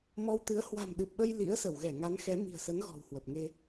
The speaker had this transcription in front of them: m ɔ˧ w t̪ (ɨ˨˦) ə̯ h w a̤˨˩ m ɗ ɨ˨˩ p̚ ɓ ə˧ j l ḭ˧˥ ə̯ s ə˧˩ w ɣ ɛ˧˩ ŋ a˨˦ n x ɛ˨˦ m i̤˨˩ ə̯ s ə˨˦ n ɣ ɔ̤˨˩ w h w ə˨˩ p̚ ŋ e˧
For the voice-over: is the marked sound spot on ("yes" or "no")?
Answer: yes